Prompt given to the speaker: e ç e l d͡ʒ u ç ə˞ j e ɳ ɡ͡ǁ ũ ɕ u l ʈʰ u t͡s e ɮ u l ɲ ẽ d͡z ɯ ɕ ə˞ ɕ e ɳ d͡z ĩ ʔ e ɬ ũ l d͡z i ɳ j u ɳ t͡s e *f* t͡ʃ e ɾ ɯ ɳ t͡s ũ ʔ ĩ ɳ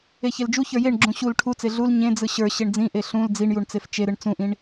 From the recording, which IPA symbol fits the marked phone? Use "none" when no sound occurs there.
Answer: f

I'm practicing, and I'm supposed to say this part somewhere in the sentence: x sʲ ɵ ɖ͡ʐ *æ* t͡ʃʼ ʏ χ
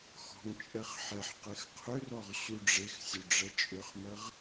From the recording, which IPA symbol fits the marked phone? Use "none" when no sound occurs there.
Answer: ɛ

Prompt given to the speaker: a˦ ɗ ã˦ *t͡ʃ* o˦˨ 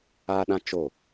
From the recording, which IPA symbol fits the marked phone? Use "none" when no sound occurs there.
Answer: t͡ʃ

